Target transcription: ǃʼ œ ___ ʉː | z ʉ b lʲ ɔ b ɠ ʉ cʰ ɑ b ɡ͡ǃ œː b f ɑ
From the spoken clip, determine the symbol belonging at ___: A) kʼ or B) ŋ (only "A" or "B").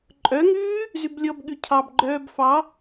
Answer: B